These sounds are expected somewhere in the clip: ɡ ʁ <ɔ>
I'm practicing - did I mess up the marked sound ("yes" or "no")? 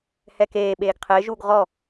no